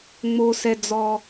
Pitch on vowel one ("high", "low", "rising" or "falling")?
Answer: low